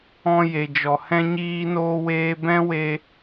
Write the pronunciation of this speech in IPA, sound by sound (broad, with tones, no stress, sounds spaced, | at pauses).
ɔ̃˧ j e˨ d͡ʒ ɔ˨ h ɛ̃˦ ɲ iː˦ n oː˦ w eː˦ b ɛ̃˦ w e˧